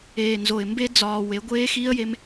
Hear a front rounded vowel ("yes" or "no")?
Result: no